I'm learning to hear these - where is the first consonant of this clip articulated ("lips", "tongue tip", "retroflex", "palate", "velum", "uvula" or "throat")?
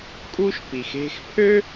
velum